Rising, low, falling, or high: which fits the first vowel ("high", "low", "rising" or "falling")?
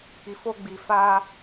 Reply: low